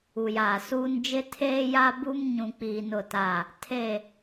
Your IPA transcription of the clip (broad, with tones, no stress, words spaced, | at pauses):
u˨jaː˨suː˦n d͡ʒɪ˦tʰeː˦ja˦bu˦m ɲũ˦k͡piː˦nʊ˦˨ta˦˨ | tʰe˦˨